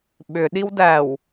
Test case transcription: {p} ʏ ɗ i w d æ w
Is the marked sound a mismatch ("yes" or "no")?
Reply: yes